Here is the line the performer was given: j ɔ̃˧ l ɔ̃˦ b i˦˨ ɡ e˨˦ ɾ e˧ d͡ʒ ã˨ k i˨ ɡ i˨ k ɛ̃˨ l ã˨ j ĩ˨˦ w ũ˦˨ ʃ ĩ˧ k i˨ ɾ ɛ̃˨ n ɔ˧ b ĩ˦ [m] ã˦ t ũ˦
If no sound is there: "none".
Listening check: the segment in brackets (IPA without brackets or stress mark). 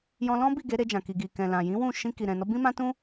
m